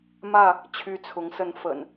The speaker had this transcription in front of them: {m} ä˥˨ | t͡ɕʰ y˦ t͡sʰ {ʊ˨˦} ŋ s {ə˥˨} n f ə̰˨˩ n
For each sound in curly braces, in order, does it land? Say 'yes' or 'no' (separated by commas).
yes, yes, yes